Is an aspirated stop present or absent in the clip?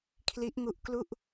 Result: present